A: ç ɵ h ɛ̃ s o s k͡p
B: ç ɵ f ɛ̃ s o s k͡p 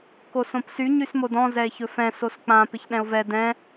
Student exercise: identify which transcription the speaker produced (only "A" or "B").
B